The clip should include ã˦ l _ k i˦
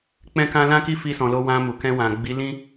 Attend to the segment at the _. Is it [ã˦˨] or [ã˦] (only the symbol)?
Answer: ã˦